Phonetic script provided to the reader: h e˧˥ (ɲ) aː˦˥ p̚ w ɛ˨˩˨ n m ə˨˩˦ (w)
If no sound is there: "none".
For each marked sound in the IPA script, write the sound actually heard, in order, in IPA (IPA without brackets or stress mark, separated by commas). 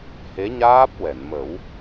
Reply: ɲ, w